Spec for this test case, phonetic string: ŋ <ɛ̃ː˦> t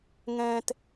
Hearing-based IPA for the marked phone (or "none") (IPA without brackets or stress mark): ɛ̃ː˦